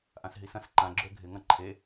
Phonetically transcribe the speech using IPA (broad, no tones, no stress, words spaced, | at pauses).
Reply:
ʔãsɦisɐ̃s ǃã ɡ͡ǁøɡʱɪ ŋɐ̃ǃʰe